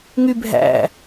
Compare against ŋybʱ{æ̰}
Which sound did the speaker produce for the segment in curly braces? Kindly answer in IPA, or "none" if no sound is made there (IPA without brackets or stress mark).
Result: æ̰